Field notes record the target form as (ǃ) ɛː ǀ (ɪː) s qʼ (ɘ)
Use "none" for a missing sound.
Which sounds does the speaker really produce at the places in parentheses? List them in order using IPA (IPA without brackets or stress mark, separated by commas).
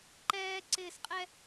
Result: ǃ, ɪː, ɛ